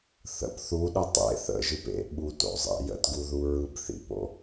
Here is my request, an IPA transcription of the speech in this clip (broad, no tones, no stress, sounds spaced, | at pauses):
θ ə̰ p θ u ɗ ə tˤ ḛ θ ə̰ ʒ ɯ p ḛ ɓ u t o̰ zˤ ḛ j ə̰ t ɡ u ð u ɹ ɯ b θ ḭ p o̰